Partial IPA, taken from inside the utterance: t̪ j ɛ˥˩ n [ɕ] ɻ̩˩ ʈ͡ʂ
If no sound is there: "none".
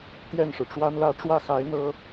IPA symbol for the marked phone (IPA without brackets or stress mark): ʂ